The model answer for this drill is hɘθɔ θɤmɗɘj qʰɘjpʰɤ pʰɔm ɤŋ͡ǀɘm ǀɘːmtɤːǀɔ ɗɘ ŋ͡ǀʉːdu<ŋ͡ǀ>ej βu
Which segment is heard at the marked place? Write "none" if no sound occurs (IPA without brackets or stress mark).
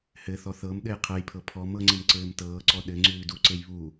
ǀ